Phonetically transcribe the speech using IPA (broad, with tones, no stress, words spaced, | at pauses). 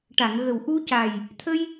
ʈa˨˩˨ŋ ɣə˨˩wʔu˧ca˨˩j | t̪ʰə˧j